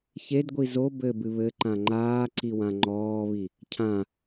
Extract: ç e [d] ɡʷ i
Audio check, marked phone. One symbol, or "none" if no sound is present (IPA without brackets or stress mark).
d